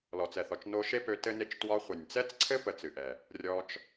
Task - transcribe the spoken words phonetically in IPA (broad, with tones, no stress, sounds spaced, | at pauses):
l ɔ˨ t͡s ɛ˨ θ ɔ˨ t͡ʃ n o˧ ʃ e˦ p ø˧ t ɘ˦ n e˦ t͡ʃ t w ɒ˧ χʷ ə˨ nʲ t͡s ɛ˦ t͡s ǀʰ ɘ˦ p ə˧ t͡s ɨ˨ ʔ ɛ˨ | rʲ ɔ˧ t͡ʃ